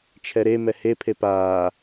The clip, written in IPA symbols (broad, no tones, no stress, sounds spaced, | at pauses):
t͡ʃʰ ɛ ɾ e m ɛ h e pʰ e p aː